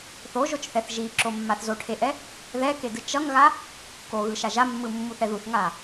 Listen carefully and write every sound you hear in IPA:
θ o ʒ o t͡ʃ θ ɛ θ ʒ i ǁ o mː a θ z o ʈʰ e ʔ ɛ | ð ɛ k e d ɯ t͡ʃ ʌ ŋ ɣ a | k o ɣ ɯ ʃ a ʒ a mː ɯ mː u θ ɛ ð u θ ŋ a

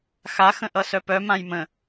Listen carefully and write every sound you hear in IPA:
x a x ə̃ ʔ ʌ s œ p œ m ã j m ə̃

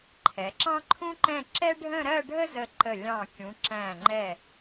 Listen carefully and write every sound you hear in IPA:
ǃʰ ɛ˩˧ ǁ ɑ̃˥ ǃʰ ũ˥ ǃ ɛ̃˥˧ ǁ ɛ˥ ɖʱ ə̃˥˧ ɾ ɜ˥˧ ɖʱ ə˥ z ə˧˩ ǃ ə˧˩ lʲ ɑ̃˧˩ kʲ ũ˩˧ ǁ æ̃˧˩ ŋ͡ǃ ɛ˧˩

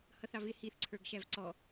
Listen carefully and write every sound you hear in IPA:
h ʌ θ ɑ v ɪ h i θ ǀʰ ə˞ ɡ ʃ æ v ǀ ɔ

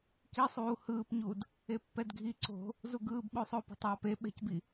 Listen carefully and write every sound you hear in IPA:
k i sˤ uː h ɯː p ɲ u d | e pː ɛ d ɡʱ i ǀ o̤ | z u ɡ ɯː b ɓ o sˤ oː p ɛ̤ tˤ w a p e ɓ ɛ̤ c b i

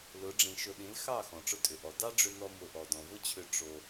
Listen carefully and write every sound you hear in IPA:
l ʊ˨˦ ɖ͡ʐ ĩ˨ ʃ ʊ˨ ɗ ĩ˨˦ l x ɑ˦˨ x ɔ̃˨ ʈ͡ʂ ʊ˦ tʼ ʏ˨ ʔ ɔ˨ d ɑ˦ ɖ͡ʐ ʏ˧ n ɔ˧ m ʊ˧ ʔ ɔ˨ d ɔ̃˨ v ʊ˦ t͡ɕʰ ʏ˧ ʈ͡ʂ o˧

